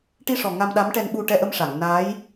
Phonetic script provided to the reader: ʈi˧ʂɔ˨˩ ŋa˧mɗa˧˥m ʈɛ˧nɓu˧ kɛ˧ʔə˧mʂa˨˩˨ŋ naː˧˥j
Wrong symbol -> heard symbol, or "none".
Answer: k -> ʈ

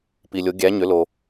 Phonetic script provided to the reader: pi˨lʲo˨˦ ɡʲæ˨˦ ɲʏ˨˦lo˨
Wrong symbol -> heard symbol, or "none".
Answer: none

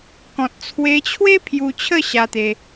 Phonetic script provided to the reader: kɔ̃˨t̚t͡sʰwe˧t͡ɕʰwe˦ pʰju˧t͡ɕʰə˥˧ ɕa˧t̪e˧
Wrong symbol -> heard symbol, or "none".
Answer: none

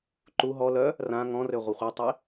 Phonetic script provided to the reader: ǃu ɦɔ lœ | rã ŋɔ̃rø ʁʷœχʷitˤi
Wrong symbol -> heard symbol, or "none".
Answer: none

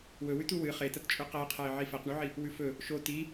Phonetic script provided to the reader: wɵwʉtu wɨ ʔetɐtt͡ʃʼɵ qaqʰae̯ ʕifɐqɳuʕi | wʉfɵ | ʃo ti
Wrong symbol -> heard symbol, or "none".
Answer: ʔ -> χ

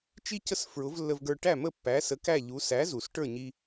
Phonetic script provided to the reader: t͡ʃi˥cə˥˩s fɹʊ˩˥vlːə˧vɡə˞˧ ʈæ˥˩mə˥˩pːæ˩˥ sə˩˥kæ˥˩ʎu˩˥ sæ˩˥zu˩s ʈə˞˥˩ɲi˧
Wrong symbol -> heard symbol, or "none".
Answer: none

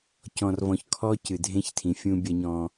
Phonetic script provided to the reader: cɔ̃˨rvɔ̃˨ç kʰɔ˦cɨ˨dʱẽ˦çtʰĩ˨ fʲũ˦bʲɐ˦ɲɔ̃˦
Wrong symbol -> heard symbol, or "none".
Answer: none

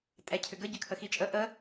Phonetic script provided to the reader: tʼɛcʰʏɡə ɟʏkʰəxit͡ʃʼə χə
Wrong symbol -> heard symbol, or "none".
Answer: χ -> ʔ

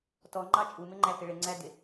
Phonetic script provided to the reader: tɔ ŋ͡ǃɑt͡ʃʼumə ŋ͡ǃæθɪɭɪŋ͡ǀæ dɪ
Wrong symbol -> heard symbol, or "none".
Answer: ə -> ɪ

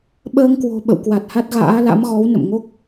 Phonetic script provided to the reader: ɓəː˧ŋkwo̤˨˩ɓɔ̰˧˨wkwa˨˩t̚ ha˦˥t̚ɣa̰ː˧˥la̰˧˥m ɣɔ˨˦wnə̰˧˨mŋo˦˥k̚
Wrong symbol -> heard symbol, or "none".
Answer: ɔ̰˧˨ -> ə̰˧˨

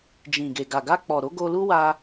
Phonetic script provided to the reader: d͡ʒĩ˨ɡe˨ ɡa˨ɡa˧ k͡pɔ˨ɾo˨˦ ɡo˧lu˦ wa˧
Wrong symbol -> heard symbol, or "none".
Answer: none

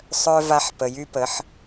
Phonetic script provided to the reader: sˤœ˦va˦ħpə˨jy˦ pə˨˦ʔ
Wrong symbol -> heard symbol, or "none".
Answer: ʔ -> ħ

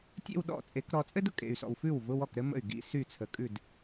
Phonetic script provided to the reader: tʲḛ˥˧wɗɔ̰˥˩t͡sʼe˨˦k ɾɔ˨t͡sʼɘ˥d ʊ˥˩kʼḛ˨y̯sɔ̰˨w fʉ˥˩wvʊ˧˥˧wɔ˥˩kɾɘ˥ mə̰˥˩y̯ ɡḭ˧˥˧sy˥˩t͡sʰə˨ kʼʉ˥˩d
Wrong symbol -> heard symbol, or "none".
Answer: none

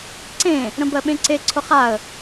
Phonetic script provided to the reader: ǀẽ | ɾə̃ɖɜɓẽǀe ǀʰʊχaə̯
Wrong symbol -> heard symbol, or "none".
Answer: ɖ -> b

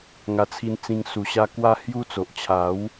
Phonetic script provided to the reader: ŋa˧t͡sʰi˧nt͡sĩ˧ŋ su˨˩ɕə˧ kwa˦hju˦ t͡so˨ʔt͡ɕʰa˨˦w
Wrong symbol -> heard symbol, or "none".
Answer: ə˧ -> a˧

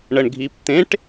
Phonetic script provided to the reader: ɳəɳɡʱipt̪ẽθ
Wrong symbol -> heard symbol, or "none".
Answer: θ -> ʈ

